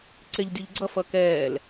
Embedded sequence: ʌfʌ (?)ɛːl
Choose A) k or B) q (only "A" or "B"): A